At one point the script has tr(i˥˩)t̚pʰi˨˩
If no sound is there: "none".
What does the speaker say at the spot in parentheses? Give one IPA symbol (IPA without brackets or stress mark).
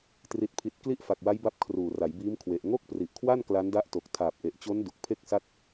i˨˩